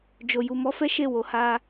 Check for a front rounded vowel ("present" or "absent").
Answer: absent